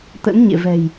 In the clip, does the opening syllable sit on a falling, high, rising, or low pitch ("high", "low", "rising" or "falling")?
rising